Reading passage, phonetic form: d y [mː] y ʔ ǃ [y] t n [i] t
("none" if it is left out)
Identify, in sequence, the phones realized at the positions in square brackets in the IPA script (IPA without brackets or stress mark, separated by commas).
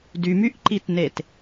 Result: m, i, e